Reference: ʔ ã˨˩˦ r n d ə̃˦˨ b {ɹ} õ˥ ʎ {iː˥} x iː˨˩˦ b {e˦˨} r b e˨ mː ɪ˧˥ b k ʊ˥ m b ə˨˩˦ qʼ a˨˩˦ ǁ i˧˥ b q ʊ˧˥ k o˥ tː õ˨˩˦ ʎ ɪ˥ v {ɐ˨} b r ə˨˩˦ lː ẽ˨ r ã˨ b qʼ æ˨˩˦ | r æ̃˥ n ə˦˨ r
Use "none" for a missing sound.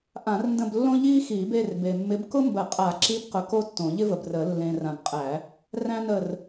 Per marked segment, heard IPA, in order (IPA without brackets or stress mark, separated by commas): lː, iː˥, e˦˨, ə˨